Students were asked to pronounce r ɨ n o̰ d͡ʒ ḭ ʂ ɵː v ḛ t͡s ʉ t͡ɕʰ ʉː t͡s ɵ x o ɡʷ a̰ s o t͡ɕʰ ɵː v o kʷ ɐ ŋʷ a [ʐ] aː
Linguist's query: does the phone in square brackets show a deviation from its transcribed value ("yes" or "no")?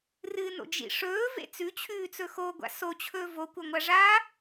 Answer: no